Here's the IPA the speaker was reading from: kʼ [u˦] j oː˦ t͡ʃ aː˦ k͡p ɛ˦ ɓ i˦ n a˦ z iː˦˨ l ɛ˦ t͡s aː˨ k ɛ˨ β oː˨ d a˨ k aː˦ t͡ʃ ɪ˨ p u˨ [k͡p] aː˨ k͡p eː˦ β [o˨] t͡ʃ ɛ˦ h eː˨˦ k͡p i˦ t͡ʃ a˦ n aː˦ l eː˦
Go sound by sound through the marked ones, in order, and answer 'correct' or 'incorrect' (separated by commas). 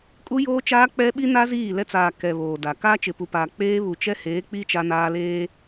correct, incorrect, incorrect